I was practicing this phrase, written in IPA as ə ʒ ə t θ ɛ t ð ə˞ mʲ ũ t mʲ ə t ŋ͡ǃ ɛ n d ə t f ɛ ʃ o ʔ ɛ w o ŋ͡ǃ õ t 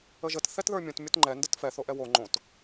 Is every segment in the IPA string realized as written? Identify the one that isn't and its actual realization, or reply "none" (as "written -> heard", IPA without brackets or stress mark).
ʃ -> θ